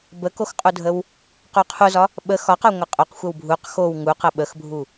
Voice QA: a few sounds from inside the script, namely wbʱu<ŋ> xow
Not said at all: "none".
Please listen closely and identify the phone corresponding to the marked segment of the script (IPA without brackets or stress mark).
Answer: q